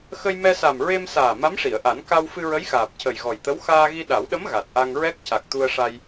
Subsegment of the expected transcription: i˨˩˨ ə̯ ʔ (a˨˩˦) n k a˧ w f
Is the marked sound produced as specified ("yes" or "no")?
yes